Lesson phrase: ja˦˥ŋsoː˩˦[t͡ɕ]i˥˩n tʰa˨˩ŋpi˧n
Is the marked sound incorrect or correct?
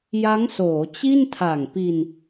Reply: correct